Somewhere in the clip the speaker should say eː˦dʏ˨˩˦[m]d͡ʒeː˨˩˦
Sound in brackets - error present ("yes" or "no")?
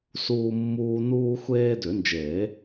yes